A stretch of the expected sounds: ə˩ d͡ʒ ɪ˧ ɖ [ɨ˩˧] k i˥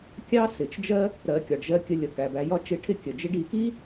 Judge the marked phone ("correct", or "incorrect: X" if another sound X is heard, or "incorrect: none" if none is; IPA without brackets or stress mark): incorrect: i˩˧